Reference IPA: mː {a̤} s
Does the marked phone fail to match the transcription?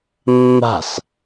no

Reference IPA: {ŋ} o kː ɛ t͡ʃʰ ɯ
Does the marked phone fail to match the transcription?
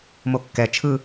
yes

